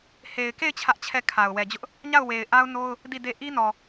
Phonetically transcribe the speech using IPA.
h e˨ ɪ̯ k e˦˨ ɪ̯ t͡ɕʰ ä˦ ʔ t͡ɕʰ ɛ˦˨ kʰ a˨ ʊ̯ w ɛ˨ d͡ʑ ʊ˦ ʔ | ɲ a˦˨ ʊ̯ w e˨ ɪ̯ ʔ a˦ ʊ̯ n o˦ ʊ̯ | d i˦˨ d e˦ ʔ i˦ n ɔ˨

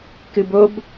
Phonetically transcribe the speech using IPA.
k ɨ b o b

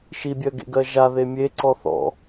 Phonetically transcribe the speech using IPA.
ʃ i bʲ ɜ ɡ ḛ ɡ ɜ ʒ a ð e mʲ e ǀ ɔ θ ɔ̰

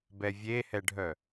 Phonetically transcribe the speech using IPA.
b ɛ vʲ e h ɛ ɖʱ œ

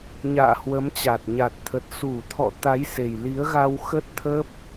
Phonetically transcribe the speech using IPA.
ɲ a̰ː˧˨ h w ə˨˦ m t͡ɕ a˨˩ t̚ ɲ a˨˩ t̚ t̪ʰ ə˨˩ t̚ s u˧˩ t̪ʰ ɔ̰˧˨ t̪ a˨˦ j s e˨˩ j l i˨˦ ə̯ ɣ a˧ w x ə˦˥ t̚ t̪ʰ ə˦˥ p̚

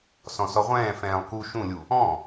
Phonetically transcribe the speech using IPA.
s ɔ̃ s ɔ ʁʷ ɛ̃ː f ɛ̃ː lˠ k u ʃ ũ lʲ u | ɔ̃

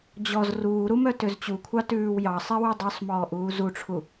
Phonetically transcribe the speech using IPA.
d͡ʑ ɔ z r uː ɾ u m œ t ø z t͡ɕ u kʷʰ ɑ t ʉː w j ɑ sˤ e w ʉ dˤ œ sˤ m ɔː ʔ uː z u ʈ͡ʂʰ u

